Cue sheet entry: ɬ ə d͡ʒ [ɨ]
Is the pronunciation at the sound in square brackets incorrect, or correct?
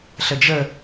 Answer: incorrect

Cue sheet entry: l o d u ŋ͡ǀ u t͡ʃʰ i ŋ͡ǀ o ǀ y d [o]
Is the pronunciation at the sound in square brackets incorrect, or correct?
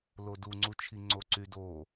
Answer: correct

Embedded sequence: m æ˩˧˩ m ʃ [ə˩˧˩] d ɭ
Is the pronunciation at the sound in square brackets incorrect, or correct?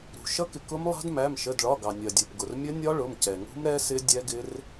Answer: correct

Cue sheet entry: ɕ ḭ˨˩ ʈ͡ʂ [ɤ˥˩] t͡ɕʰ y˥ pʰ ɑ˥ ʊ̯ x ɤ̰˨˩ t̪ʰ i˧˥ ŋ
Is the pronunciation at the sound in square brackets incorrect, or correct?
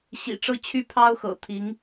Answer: correct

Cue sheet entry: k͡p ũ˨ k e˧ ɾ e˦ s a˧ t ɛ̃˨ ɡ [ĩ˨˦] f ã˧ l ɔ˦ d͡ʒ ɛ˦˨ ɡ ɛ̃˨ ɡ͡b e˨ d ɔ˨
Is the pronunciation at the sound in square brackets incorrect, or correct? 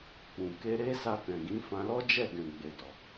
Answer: correct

